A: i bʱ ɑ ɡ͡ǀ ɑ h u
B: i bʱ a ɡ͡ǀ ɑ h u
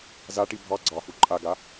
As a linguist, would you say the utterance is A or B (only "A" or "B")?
A